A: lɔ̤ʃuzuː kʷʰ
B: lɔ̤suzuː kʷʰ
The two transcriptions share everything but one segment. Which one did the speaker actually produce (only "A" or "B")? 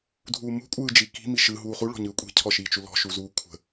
A